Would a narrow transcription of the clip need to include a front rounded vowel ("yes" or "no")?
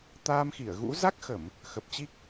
no